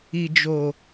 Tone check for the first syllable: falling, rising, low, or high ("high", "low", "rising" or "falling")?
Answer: low